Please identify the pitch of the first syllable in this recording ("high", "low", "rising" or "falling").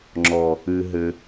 low